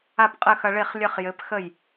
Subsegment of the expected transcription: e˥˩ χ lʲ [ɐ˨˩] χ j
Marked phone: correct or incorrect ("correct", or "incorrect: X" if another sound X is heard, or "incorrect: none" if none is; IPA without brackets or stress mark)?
incorrect: ɐ˥˧